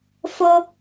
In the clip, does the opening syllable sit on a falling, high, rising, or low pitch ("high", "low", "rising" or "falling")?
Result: high